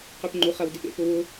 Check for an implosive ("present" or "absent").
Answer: absent